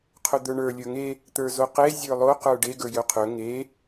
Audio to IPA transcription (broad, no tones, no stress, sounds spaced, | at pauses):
qʰ ɵ d̪ ə˞ ɳ ə˞ lʲ ə˞ ŋ e | t̪ ə˞ z o q e zʲ ə˞ lˠ o q ə˞ ɖ e ɡ ə˞ j ɵ qʰ ɵ ŋ e